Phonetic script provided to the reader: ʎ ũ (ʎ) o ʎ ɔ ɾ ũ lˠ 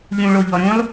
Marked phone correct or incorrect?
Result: incorrect